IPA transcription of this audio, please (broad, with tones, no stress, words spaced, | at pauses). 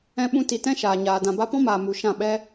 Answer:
ɛ̃˧ɓũ˧ti˨tɛ̃˦ ʃaː˨ɲaː˨ dã˨ba˧pɔ̃˦maː˨ mu˨ ʃã˦˨ɓɛ˦